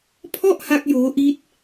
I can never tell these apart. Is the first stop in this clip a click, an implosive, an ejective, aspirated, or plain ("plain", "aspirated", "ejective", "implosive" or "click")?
aspirated